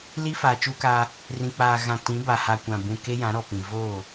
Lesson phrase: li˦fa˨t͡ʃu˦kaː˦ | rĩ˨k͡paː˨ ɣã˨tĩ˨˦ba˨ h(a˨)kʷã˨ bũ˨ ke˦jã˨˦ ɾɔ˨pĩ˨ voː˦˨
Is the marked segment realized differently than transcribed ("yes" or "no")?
no